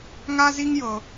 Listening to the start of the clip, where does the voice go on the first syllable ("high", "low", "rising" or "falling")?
high